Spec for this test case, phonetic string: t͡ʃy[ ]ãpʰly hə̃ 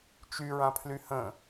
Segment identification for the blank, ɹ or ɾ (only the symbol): ɹ